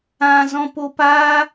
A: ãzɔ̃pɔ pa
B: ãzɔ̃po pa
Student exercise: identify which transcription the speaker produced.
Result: B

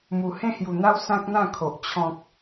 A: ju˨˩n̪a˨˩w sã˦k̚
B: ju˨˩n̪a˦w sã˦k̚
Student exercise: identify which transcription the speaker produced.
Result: B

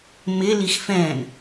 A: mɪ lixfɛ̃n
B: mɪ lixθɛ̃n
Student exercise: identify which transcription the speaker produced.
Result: A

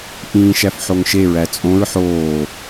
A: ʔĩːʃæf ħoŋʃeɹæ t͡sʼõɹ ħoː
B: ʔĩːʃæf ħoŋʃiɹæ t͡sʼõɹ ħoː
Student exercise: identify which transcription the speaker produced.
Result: A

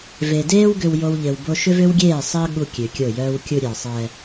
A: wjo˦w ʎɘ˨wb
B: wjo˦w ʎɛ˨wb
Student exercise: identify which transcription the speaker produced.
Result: A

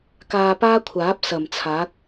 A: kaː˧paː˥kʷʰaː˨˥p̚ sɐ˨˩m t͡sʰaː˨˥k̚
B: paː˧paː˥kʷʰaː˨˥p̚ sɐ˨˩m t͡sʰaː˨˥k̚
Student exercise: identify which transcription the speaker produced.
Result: A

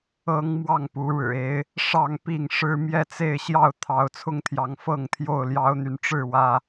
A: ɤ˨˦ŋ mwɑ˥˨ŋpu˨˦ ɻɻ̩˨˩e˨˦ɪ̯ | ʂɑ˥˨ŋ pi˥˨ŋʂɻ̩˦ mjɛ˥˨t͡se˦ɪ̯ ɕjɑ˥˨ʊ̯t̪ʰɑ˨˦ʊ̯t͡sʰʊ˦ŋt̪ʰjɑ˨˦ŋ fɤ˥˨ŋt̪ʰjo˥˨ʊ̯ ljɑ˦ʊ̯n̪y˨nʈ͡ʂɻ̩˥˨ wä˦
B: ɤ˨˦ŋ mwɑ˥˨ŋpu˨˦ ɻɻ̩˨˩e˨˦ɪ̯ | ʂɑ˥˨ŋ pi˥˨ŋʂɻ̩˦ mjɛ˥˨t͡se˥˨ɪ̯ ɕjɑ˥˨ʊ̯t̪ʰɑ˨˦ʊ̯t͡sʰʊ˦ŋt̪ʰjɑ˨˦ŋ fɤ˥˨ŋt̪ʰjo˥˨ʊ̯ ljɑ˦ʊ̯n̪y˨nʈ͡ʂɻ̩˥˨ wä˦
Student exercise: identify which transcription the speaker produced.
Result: B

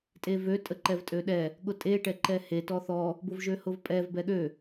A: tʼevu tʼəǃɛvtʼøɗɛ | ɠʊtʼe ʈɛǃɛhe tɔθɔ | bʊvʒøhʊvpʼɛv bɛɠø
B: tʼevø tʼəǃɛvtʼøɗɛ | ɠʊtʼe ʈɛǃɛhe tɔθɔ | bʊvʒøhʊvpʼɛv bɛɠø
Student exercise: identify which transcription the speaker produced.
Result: B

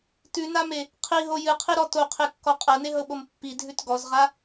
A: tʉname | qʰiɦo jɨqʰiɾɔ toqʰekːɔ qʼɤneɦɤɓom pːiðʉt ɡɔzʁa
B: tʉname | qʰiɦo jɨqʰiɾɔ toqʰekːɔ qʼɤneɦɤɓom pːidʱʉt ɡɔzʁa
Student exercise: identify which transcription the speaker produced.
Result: B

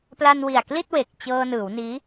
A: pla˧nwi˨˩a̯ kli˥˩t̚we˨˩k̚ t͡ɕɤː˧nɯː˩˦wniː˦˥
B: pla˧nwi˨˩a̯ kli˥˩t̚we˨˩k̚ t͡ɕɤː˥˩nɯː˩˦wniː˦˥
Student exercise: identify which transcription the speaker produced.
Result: A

